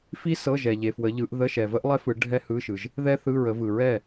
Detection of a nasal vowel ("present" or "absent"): absent